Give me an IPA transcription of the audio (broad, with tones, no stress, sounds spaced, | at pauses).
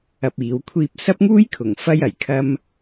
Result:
ɐ˧ p̚ iː˨˥ w kʷʰ iː˧ p̚ s ɐ˥ p̚ ŋ uː˥ j kʰ ʊ˨˩ ŋ f ɐ˥ j ɐ˨˩ j kʰ ɐ˥ m